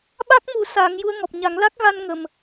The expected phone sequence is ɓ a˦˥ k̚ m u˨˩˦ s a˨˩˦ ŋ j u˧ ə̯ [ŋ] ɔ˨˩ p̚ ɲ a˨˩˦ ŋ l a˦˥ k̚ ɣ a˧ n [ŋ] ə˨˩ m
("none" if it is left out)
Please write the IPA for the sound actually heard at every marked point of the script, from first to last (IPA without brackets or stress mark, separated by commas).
ŋ, ŋ